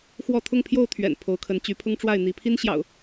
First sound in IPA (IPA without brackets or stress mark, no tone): x